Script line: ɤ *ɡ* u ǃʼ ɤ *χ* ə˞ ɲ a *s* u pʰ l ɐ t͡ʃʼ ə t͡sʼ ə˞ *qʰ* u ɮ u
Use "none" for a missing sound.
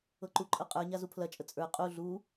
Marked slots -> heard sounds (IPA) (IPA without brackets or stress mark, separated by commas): ǃ, qʼ, z, qʼ